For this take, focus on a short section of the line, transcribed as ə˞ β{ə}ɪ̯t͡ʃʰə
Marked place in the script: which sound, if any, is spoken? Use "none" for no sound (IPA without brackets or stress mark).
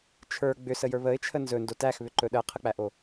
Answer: ə